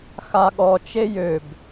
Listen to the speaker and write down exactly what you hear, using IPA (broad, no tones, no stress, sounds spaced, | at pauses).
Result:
x a ɠ ɔ t͡ʃ e j ø b